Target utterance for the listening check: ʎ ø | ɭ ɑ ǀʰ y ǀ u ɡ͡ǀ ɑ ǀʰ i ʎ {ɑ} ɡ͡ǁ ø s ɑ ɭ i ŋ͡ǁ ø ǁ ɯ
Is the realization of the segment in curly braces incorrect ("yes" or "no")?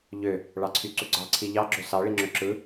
no